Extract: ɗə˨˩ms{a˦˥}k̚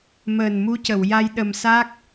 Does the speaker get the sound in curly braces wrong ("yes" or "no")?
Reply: no